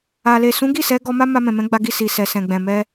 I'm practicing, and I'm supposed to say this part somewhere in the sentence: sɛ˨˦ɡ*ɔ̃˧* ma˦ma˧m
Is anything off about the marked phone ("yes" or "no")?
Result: yes